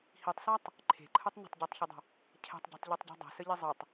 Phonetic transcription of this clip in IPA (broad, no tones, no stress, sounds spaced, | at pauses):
h i tˤ s a tˤ | ǃʰ e̤ ǃʰ ɯ tˤ n ə̤ tˤ ɟ ɜ tˤ ç ə dˤ ə̤ | cʰ ɛ̤ tˤ ɟ ɛ̤ tˤ ʎ e tˤ ɟ ɛ̤ dˤ ɛ̤ s ə ʎ i zˤ ɯ tˤ